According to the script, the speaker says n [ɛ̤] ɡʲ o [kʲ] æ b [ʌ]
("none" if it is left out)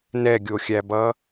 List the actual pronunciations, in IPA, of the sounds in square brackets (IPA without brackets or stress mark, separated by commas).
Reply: ɛ, xʲ, ʌ